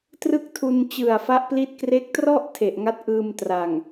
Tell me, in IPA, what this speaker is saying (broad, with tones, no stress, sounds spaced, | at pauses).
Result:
t r ɯ˥˩ k̚ tʰ u˧ n t͡ɕ ɯ˨˩ a̯ f a˦˥ ʔ p l i˦˥ t̚ k r e˦˥ k̚ t r ɔ˥˩ ʔ tʰ e˨˩ ʔ ŋ a˦˥ t̚ ʔ ɯː˧ m t r a˨˩ ŋ